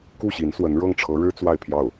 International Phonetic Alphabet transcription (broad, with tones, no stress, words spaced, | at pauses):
ku˥˩ ɕi˧˥nswə˧˥n ɻɤ˥˩ŋʈ͡ʂʰɤ˧˥ɻɻ̩˥ t͡swa˥˧ɪ̯pʰjɑ˥˩ʊ̯